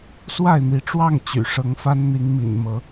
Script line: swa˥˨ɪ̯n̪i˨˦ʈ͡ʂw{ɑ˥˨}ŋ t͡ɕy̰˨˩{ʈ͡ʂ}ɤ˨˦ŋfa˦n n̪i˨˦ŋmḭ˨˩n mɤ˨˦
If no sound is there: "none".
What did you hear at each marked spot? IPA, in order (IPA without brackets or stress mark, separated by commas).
ɑ˥˨, ʂ